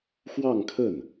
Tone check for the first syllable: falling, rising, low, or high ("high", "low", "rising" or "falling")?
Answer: falling